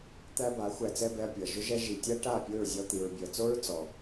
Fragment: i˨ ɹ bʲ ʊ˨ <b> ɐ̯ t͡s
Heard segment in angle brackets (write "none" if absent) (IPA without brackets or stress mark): none